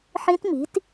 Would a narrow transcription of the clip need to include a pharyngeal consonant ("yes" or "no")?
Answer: yes